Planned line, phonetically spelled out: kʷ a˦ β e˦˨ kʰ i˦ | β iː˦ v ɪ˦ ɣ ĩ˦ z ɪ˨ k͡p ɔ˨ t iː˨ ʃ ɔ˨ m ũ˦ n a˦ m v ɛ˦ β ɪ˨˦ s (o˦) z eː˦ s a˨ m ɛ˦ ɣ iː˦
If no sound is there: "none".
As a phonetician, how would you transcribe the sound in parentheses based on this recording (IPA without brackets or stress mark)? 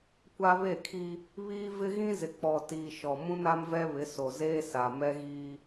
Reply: o˨